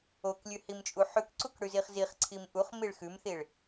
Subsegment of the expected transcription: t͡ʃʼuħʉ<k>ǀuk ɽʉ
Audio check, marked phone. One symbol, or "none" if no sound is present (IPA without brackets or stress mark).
k